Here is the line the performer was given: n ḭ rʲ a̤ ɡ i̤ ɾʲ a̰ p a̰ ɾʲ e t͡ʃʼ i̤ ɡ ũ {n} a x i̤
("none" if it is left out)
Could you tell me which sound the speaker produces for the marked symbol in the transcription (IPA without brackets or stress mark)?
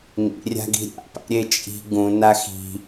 n